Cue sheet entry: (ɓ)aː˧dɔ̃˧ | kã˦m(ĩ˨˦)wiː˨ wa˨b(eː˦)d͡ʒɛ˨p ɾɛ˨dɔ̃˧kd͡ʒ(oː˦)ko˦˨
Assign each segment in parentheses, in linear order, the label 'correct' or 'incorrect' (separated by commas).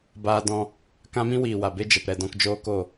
incorrect, incorrect, incorrect, correct